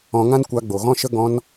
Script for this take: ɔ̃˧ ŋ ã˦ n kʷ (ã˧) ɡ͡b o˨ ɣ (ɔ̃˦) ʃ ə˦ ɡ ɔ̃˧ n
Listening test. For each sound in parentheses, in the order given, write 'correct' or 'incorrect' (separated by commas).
incorrect, correct